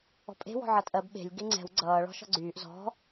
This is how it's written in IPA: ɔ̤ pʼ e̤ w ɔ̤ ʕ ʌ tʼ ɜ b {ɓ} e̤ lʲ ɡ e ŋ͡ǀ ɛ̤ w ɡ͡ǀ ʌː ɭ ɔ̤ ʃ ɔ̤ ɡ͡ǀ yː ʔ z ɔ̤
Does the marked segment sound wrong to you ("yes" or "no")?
no